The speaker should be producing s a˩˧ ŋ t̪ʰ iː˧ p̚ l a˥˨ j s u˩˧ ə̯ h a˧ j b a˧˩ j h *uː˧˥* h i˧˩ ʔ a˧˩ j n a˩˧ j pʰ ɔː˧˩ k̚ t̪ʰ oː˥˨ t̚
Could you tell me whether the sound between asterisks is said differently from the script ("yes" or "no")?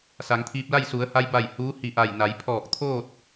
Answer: no